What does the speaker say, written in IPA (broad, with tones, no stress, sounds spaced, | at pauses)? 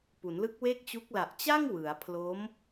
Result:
p u˩˦ n l ɯ˦˥ k̚ w e˥˩ k̚ t͡ɕ u˦˥ k̚ l a˨˩ ʔ t͡ɕ a˥˩ ŋ w ɯ˩˦ a̯ pʰ l o˦˥ m